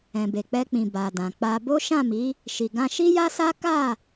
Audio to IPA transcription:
ɛ̃˨ b e˨ k͡p ɛ˧ k͡p ĩ˨ b a˨ d ã˨ k͡p a˧ b o˦ ʃ ã˦˨ m i˨˦ | ʃ i˨ ɡ ã˧ ʃ i˦ j a˦ s a˦ k a˦˨

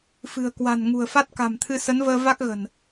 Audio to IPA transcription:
f ɨ̤˨˩ ə̯ k w a̤˨˩ n ŋ ṳ˨˩ ə̯ f a˦˥ t̚ k a̤˨˩ m t̪ʰ ɨ˧ s ə˨˦ n v əː˧ v a˦˥ k̚ ɣ ə̤˨˩ n

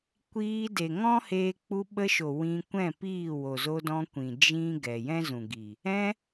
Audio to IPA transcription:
kʷ iː˧ d e˨ ŋ ɔ̃˦ h eː˧ k͡p u˧ ɓ ə˧ ʃ o˨ w ĩ˧ kʷ ɛ̃˦˨ p iː˦˨ w o˨ z o˧ d ɔ̃˧ kʷ ĩ˨ d͡ʒ ĩ˦ ɡ ɛ˨ j ɛ̃˦ z ũ˨ ɡ i˨ | ɛ̃˧

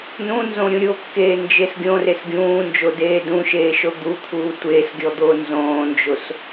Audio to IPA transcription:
n ũ n z õ ɾʲ ũ ɾʲ o kː eː n d͡ʒ e s ɡʲ õ r e s ɡʲ ũː n d͡ʒ o d eː d ũ ʃ eː ʃ o d̪ u t̪ʰ uː tʷ eː s ɡʲ ɔ d̪ oː n z õː n d͡ʒ o s

